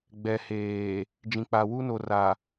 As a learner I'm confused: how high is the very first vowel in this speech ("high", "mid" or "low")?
mid